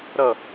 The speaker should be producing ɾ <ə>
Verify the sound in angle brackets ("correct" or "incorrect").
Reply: incorrect